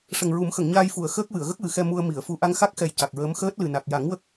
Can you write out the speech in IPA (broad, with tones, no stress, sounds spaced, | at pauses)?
ʂ ə˨˩ ŋ ɹ u˨˩˦ m x ə˨˩˨ ŋ ɲ aː˧ j f u˨˩˨ ə̯ x əː˦˥ k̚ w ɨ˨˩˨ ə̯ ɣ ə˦˥ k̚ w ɨ˨˩ x ɛ˧ m u˧ ə̯ m i˨˩˨ ə̯ f u˨˩ ʔ a˧ ŋ x a˦˥ k̚ x ɛ˨˩ j c a˨˩ k̚ ɹ əː˧˥ m x əː˦˥ t̚ l ɨ˨˩ n a˨˩ k̚ j a˨˩˦ ŋ w ə˦˥ k̚